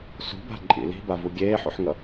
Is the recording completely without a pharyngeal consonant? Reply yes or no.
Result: no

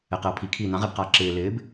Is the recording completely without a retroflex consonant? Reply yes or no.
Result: yes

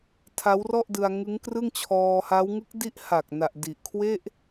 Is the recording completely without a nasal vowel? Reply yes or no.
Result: yes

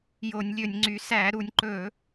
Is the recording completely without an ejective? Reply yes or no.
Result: yes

